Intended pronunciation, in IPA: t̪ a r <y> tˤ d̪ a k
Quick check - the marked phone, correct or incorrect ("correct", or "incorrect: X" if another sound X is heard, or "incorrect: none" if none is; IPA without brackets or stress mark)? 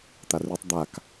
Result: correct